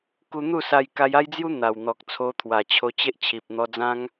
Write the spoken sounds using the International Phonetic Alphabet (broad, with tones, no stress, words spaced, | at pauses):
ku˧n̪u˥˧sa˧j ka˧ja˦jd͡zju˦ n̪a˨˩wn̪ɔ˨k̚ t͡sʰo˧t̪ʰwa˨˩t͡ɕʰo˧ t͡ɕe˦ʔt͡ɕʰi˨p̚ n̪ɔ˧d͡zã˦ŋ